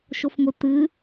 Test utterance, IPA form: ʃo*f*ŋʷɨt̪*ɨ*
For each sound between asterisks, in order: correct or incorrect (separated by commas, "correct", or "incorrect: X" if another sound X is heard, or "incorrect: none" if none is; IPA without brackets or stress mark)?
correct, correct